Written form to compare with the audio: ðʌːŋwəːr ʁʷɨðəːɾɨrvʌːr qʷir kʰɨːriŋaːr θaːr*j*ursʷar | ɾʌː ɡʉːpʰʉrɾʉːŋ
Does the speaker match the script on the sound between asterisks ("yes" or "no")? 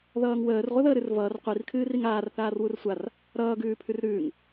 no